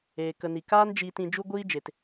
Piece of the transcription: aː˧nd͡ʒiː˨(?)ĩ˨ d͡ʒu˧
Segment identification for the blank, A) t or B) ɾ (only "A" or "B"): A